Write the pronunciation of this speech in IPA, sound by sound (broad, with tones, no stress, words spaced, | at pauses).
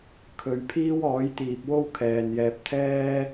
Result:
kʰɵ˨˧ɥpʰiː˥w ɔː˨˥j t̪iː˨p̚wo˥wkʰɛː˨njɛː˧p̚ t̪ʰɛː˥